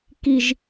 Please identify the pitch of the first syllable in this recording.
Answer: low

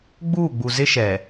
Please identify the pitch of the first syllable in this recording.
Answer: falling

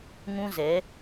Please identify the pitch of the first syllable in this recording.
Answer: high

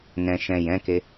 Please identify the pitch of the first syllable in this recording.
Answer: low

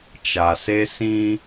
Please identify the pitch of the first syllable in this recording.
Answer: low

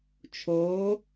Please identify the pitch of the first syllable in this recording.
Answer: rising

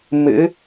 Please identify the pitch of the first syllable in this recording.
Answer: rising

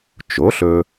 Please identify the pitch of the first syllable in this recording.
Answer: rising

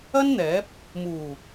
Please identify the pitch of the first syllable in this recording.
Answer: high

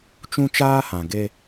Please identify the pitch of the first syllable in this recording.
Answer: high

